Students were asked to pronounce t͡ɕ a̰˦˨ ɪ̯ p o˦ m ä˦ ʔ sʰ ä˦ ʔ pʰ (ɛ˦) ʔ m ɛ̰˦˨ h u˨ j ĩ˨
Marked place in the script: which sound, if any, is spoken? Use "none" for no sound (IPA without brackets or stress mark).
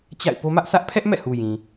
ɛ˦